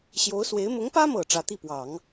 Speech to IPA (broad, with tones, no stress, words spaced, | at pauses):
ɕjo˧˥ʊ̯swe˧˥ɪ̯ mʊ˧˥ŋpä˥mɤ˨˩ ʈ͡ʂä˧˥t̪i˥˩pwɑ˨˩˦ŋ